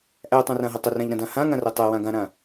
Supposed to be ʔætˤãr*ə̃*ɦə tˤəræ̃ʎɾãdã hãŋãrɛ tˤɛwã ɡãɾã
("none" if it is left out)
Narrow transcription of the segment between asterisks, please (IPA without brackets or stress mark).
ã